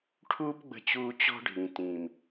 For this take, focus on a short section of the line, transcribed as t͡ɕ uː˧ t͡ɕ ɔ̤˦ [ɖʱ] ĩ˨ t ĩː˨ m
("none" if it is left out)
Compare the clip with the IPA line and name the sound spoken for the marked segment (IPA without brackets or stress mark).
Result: ɖʱ